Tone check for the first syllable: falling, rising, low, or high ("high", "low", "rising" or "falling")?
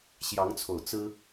rising